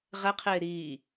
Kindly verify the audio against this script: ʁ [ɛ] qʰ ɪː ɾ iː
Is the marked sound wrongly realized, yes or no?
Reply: no